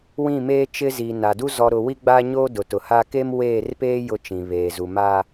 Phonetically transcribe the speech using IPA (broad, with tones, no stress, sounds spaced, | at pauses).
w ĩ˦˨ m eː˦ t͡ʃ ɪ˦ z iː˨ n a˨ d u˦ z ɔ˨ ɾ ʊ˨ w i˦ ɡ͡b a˦ ɲ oː˦ d ʊ˨ t ʊ˨ h a˦ k e˦ m w eː˦˨ r p eː˦ j ʊ˦ t͡ʃ ĩ˨ β eː˨ z u˨ m a˦